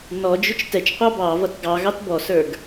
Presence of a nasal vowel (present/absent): absent